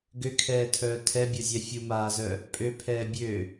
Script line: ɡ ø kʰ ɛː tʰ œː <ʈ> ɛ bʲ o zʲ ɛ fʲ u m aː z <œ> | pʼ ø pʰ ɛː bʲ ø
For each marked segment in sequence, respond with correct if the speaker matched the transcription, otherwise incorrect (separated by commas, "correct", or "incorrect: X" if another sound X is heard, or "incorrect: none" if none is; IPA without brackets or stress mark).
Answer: incorrect: tʰ, correct